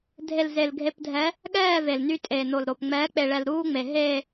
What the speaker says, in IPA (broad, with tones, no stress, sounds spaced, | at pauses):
dʱ e˨ l z e˨ l ɡʱ e˨ p dʱ ɛ˨˦ | ɠ ɛː˦˨ v e˨ l n y˦ tʼ eː˨ n o˨ l ɾ o˨ p ŋ͡m ɛː˨˦ k͡p e˨ ɭ ɛ˨ l ɾ uː˦ ŋ͡m e˨ ɦ e˦˨